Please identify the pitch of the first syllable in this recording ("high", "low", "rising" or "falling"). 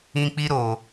high